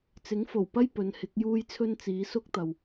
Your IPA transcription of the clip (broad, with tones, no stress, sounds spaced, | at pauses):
t͡s ɪ˨˥ ŋ f o˨˩ w p ɐ˥ j p ɵ˨˧ n h ɪ˨˥ k̚ j uː˥ j t͡sʰ ɵ˥ n t͡s iː˨˧ s ʊ˥ k̚ t̪ ɐ˨ w